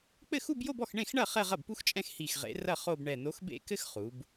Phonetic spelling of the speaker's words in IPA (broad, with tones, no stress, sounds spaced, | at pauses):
k͡p ɘ˥˩ x u˥˧ b j o˥˧ b ɔ˥˩ x ɳ ẽ˥˩ x ɳ ɐ˥˩ χ ɛ˥˧ ʁ ɐ˥˩ b p u˥ x t͡ʃʼ ɛ̃˥˧ x h i˧˩ x ʁ ḛ˨˥ r ɐ˥˩ χ o˥˧ b ɳ ɛ˧˩ n o˨˥ x b ḛ˥˧ k ɘ˥ x χ u˩˧ b